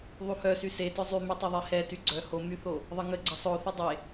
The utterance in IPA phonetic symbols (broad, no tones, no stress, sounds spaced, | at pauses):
ðˤ u h œ s y s e t œ zˤ y m y tˤ œ ðˤ e h ɛ t y ɡ͡ǀ œ h o m y θ o | ðˤ ə ŋ ə ɡ͡ǀ ə sˤ o θ ə dˤ e